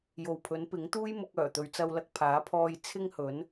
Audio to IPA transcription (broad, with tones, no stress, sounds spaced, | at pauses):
j o˨ w pʰ ɵ˨˥ n p ɪ˨˥ ŋ t̪ uː˥ j m ʊ˧ k̚ œː˨˩ t̪ ɵ˨ ɥ t͡s ɐ˧ w l ɐ˧ k̚ pʰ aː˨˥ pʰ ɔː˧ j t͡sʰ ɪ˥ ŋ h ɵ˨˥ n